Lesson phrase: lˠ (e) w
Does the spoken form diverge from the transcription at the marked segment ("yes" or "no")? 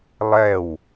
yes